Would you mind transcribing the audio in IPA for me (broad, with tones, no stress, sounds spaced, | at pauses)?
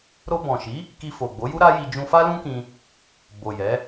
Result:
ɾ o˧ b ɔ̃˨ ʃ i˨˦ | k i˧ f o˨ ɡ͡b o˨˦ j u˦ ɾ a˦ j i˧ d͡ʒ ũ˧ f a˦ l ũ˦ k ĩ˧ | b o˨ j ɛ˨˦